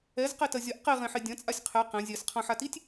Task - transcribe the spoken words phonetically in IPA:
ɛ z q i t ɐ zʲ ɐ ʔ q i ʁ ẽ ħ e dʲ ɐ̃ t͡sʼ a sʲ qʰ e q ẽ zʲ ɛ s qʰ ɐ̃ ħ a t i tʲ

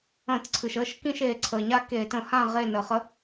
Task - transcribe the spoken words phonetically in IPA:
ə̃ː˧˩˧ t ǀʰ ɨ˩ ʃ əː˥˨ ʃ k ĩ˥˨ ʃ eː˧˩˧ ǀʰ əː˩ ɲ a˥˨ k e˧˩˧ t ə̃˧˩˧ h ã˥˨ ʁ eː˥˨ n əː˧˩˧ χ ə˧˥

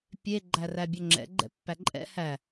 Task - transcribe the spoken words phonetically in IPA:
pʲ e ɡ͡ǃ æ r æ bʲ ɵ ŋ͡ǁ ɛ̰ ɡ͡ǃ ɛ̰ pː æ ǃʼ ɛ̰ h æ

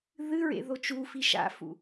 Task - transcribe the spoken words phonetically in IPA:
ð ɨ ɹ ḛ ð o t͡ʃ u f i ʃ a̰ f ṵ

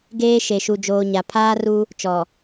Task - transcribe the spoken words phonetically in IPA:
ɡ eː˦ ʃ e˨ ʃ u˨ d͡ʒ oː˨ ɲ a˨ pʰ aː˦ r u˦ | t͡ʃ ɔ˨

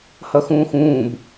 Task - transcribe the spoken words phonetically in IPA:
h ʌ x ũː x ũː b

